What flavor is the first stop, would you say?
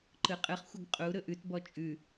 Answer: click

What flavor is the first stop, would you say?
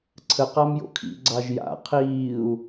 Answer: click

